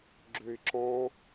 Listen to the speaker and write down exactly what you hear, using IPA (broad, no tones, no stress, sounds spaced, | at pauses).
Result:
ɡ͡ǁ ø ɪ̯ ǁ ɔ̃